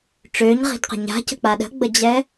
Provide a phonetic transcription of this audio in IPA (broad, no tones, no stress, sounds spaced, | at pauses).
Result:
ʈ͡ʂ ø ɲ ʁ i̤ d q ə̤ ɲ a̤ c ə̤ k͡p a ɗ ə̤ ɡ͡b ə d͡ʑ ɛ